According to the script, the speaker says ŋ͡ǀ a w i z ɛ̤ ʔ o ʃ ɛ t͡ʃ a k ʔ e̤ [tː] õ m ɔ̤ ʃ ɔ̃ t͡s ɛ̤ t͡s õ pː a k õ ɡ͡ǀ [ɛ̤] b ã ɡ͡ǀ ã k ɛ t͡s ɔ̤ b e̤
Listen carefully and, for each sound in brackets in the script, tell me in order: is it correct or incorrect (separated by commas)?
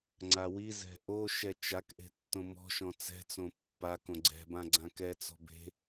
correct, correct